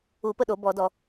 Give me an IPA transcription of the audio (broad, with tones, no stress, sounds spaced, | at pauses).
u˧˩˧ p ə˥˩ ɗ o˧˩˧ b ɔ˧˩˧ d ɔ˧˩˧